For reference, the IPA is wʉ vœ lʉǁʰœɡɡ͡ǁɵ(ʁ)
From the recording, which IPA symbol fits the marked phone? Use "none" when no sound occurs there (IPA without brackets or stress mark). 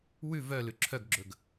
ɡ